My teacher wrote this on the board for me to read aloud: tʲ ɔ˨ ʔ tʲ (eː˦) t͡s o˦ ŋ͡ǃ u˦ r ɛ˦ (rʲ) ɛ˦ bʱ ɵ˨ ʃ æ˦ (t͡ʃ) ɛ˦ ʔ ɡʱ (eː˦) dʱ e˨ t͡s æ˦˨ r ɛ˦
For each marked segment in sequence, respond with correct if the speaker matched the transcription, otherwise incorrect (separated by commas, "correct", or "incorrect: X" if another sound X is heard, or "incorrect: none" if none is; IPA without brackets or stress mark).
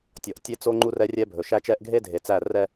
incorrect: e˦, correct, correct, incorrect: e˦